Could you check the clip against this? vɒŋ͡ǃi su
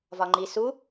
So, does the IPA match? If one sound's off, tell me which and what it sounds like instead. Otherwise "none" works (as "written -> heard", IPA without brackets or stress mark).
none